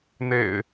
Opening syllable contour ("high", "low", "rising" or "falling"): low